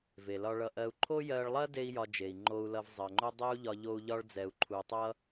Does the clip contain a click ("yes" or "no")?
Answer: yes